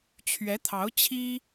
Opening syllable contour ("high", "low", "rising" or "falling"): rising